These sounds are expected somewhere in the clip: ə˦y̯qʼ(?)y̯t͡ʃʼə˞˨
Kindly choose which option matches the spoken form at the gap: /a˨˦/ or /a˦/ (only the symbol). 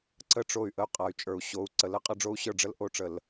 a˨˦